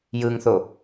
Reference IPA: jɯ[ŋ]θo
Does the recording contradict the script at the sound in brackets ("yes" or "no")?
no